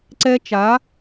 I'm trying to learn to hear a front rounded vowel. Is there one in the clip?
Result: no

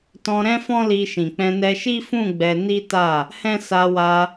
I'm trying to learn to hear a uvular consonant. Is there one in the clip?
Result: no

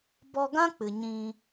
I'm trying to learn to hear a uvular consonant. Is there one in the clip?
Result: no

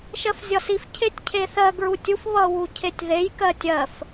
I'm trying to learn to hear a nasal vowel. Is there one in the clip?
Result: no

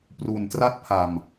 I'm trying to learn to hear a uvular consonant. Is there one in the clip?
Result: no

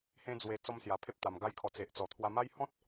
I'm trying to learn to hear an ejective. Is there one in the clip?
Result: no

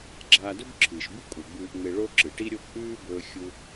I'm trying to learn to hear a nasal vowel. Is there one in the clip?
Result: no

